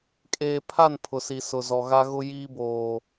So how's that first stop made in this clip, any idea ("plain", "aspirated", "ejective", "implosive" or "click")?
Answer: ejective